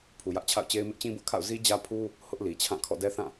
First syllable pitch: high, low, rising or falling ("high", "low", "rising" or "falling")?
low